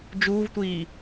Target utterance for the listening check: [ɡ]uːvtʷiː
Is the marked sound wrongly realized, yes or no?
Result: yes